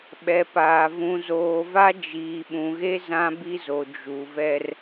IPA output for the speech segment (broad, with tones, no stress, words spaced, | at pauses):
ɓɛ˨paː˨ vũ˨zoː˨va˦ d͡ʒiː˨ɓũ˨ɣe˦ zã˦bi˦zo˨ d͡ʒu˨vɛ˦r